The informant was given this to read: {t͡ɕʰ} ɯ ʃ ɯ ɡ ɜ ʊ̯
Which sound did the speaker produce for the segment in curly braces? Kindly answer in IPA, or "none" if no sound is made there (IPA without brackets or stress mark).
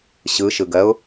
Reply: ɕ